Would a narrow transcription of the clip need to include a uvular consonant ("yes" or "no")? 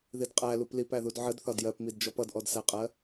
yes